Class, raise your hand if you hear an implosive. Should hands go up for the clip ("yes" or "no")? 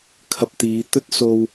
no